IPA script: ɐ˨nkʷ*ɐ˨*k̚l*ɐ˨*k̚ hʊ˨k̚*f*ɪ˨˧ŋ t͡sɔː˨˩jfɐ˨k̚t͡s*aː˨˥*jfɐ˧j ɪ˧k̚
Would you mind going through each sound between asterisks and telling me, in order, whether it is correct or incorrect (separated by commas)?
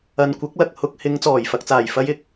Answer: incorrect, correct, incorrect, incorrect